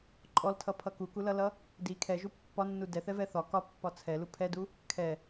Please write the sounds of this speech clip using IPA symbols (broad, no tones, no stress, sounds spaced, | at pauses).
ǃʼ ɔ l tʰ ʌ pʰ ʌ k u k u l ʌ l ʌ | d i kʰ ɛ ʒ u pː ɒ nː u d ɛ θ ɛ v ɛ θ ɒ k ɒ pː ɒ t͡sʰ ɛ l u pʰ ɛ d u | kʰ ɛ